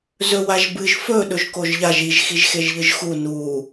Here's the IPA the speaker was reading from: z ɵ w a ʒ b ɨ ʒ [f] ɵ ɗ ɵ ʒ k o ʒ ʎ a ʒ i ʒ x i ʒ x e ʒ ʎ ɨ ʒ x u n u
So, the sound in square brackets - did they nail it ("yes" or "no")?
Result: yes